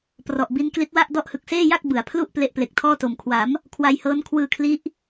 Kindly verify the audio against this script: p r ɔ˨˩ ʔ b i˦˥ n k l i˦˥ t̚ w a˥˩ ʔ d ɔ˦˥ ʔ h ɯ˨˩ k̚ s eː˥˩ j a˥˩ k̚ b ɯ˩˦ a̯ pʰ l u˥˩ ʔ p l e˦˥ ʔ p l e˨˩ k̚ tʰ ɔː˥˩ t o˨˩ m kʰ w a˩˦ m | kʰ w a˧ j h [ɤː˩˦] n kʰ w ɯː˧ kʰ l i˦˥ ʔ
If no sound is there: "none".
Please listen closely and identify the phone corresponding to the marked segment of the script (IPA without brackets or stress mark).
ɤː˦˥